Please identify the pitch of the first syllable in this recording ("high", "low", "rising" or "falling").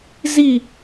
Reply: falling